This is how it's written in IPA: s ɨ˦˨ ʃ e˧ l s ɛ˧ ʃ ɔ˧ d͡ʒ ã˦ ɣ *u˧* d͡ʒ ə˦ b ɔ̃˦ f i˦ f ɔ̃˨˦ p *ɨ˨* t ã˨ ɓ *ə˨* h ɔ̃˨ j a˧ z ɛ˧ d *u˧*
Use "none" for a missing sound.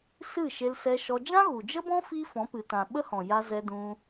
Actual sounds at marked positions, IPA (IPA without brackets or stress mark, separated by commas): u˨, ɨ˨, ə˦, ũ˧